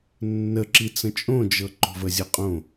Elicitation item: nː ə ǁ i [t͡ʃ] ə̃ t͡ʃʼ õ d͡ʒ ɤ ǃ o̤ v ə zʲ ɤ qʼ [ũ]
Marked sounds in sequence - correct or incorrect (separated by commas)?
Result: incorrect, incorrect